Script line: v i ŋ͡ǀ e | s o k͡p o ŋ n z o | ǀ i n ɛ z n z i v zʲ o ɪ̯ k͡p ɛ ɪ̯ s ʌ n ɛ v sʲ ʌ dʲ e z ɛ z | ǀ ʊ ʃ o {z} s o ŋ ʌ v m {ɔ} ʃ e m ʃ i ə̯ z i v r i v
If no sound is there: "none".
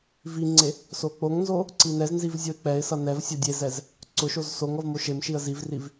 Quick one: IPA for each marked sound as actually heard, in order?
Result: z, o

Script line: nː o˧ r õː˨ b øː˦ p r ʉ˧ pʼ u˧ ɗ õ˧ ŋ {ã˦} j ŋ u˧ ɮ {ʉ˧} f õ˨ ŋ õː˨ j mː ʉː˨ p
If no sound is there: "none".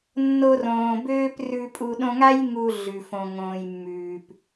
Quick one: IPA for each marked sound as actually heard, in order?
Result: a˦, ʉ˨

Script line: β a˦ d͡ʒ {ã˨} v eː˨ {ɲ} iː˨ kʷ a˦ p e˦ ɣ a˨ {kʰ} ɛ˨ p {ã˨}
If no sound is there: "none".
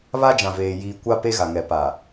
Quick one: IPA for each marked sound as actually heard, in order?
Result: ã˨, j, ŋ, a˨

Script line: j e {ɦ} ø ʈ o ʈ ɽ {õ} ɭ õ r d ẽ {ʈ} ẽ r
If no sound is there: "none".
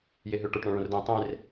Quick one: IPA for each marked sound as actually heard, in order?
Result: ɦ, ɔ̃, tˤ

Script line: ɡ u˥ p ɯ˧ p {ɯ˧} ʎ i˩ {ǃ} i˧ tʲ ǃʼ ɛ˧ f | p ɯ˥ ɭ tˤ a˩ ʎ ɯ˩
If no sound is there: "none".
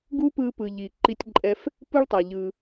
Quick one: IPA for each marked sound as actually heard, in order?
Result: ɯ˩, ǃ

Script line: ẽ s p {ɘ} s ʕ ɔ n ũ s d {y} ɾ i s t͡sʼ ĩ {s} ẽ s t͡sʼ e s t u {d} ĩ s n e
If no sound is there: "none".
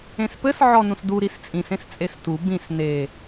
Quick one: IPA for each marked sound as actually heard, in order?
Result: ɘ, u, s, b

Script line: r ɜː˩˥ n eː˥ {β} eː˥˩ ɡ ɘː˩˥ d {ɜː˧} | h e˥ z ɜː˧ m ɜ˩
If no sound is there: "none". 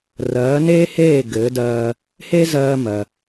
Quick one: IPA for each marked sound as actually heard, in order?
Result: h, ɜː˧

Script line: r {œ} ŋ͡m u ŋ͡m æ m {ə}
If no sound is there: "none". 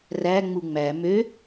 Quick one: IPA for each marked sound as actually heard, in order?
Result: æ, ø

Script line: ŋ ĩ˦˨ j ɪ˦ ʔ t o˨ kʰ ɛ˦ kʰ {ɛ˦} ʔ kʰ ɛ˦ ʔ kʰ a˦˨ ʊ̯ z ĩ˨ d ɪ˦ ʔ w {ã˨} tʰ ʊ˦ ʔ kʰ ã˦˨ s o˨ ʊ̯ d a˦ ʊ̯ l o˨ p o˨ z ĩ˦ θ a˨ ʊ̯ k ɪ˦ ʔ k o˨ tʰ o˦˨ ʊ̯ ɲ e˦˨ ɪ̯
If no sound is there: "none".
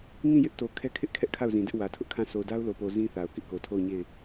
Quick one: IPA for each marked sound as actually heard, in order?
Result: ɪ˦, ä˨

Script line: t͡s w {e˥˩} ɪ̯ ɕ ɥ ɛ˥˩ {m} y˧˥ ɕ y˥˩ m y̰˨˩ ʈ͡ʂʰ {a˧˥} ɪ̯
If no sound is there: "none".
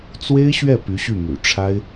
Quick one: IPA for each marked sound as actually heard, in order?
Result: e˥, p, a˥

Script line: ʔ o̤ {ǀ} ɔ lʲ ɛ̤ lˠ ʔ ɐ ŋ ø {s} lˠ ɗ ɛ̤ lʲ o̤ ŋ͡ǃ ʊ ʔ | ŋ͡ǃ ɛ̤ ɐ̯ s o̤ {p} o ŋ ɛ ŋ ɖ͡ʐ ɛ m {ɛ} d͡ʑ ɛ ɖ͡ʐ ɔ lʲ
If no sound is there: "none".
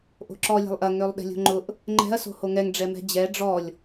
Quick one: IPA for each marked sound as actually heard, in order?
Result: ǁ, none, h, ɛ̤

